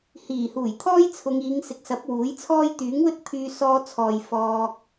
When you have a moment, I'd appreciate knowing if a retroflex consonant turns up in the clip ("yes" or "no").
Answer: no